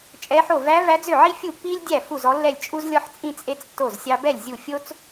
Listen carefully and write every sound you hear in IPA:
t͡ʃʼ ɛ˧˥ ħ o˥˩ v æ˧˥ v æ˧˥ d͡z ø˥˩ ʕ i˥ fʲ u˥˩ pː iː˥ lʲ dʲ æ˥˩ f u˥˩ z ɔ˧˥ lː ɛ˥˩ lʲ t͡ʃʼ u˥ z lʲ ɔ˥ ħ t͡sʼ ĩ˥ t͡sʼ e˥ t͡s tː o˥˩ z sʲ ɑ˥ b ɛ˥˩ lʲ zʲ u˥˩ fʲ o˥ t͡s

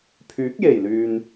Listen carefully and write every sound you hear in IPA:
pʰ yː˨˥ k̚ j e˨˩ j l yː˨ n

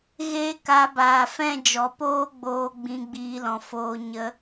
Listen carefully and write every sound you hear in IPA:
ɣ eː˦ k a˧ b aː˨ f ɛ̃˦˨ d͡ʒ ɔ˨ p oː˦ ɡ͡b oː˧ ɡ͡b ĩ˧ ɡ͡b iː˧ l ɔ̃˨ f oː˧ ɲ ə˧

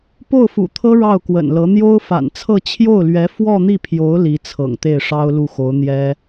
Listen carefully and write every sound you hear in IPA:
p o˥˩ ʊ̯ f ṵ˨˩ t̪ʰ ɤ˥ ɻ ɑ˥˩ ʊ̯ k w ə̰˨˩ n l ɤ˧˥ n̪ j o˥ ʊ̯ f a̰˨˩ n t͡sʰ ɤ˥˧ t͡ɕʰ j o˥˩ ʊ̯ l ɥ ɛ˧˥ f w ɔ˥˧ n̪ i˥˩ pʰ j o˧˥ ʊ̯ l i˧˥ t͡sʰ ɤ̰˨˩ ŋ t̪ e˥˩ ɪ̯ ʂ ɑ˥ ʊ̯ l u˥˩ x o˧˥ ʊ̯ n̪ j ɛ˥

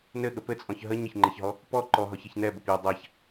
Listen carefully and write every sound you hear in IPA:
n ɘ ɠ ə p ɘ t͡sʼ ɔ̃ ç ɦ ə ɲ ə ç ŋ͡ǃ e ç ɦ ɔ | p ɔ ǃ ɔ ɦ ɔ ç e ç n ɛ b ə p j ə dˤ a ç

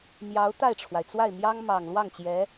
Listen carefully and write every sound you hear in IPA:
m j ɑ˧˥ ʊ̯ t̪ a˥˩ ɪ̯ ʈ͡ʂʰ w a˩ ɪ̯ t͡s w a˥˩ ɪ̯ m j ɑ˥ ŋ m ɑ˨˩ ŋ l w ɑ˥˩ ŋ t͡ɕ j ɛ˧˥

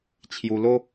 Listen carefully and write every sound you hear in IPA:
t͡ɕʰ j u˧ l o˦

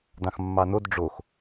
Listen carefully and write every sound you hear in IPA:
d ɑ̃ x mː ɑ n o d ɖ͡ʐ o x

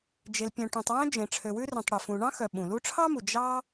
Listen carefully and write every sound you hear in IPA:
d͡ʒ e˨ l pʲ œ̃˨ ʈ œ̃˨ tˤ w œ̃˥ d͡ʒ ẽ˨ ʈ͡ʂʰ ø˨ w ʉ˥ r œ̃˨ tˤ ɽ y˩ f ũ˨ ɳ ɑ̃˥ x œ˨ ɓ ũ˩ l u˦ ʈ͡ʂʰ ɑ˥ m u˩ d͡ʒ ɑ˦

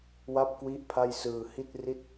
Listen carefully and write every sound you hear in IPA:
w a˥˩ p̚ k w i˥˩ ʔ pʰ a˥˩ j s ɯː˧ h i˥˩ t̚ r i˥˩ t̚

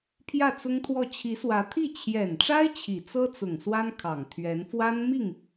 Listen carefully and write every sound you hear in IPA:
pʰ j ä˥˩ t͡s ʊ˥ ŋ t̪ʰ w ɔ˥˩ t͡ɕʰ i˧˥ s w ä˧˥ t̪ʰ i˥˩ t͡ɕʰ j ɛ˨˩ n ʈ͡ʂ a˥ ɪ̯ t͡ɕʰ i˨˩ t͡s ɤ˥ t͡s ʊ˨˩ ŋ s w a˥ n kʰ ɑ˨˩ ŋ t̪ʰ ɥ ɛ˧˥ n f w a˥ n m i˥˩ ŋ

